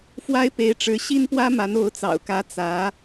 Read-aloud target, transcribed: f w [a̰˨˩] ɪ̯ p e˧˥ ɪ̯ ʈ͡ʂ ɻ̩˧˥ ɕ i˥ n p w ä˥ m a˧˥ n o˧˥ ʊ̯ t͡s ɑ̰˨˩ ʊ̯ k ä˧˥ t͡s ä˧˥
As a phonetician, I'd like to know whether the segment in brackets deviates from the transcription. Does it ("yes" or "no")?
yes